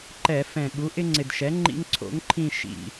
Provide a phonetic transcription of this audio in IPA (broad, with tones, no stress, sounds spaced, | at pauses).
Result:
ǃ ɛ˧˩˧ f ɛ̃˨˩ ɠ u˩˥ ʔ ɪ˦ ŋ͡ǀ ɪ˨˩ d ʃ ɛ˩˥ ŋ͡ǃ ḭ˦ ŋ ǀʰ o̰˩˥ ŋ ǃʰ ĩ˦˨ ʃ ḭ˨˩